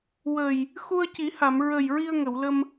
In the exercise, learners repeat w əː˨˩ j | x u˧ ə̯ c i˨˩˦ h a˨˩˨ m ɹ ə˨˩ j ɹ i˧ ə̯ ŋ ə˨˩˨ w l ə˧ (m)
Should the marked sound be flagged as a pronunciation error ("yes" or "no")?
no